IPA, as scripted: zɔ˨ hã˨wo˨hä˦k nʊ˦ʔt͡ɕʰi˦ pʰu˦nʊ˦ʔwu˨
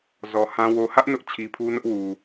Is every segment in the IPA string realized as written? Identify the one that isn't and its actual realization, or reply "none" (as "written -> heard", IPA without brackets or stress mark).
k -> ʔ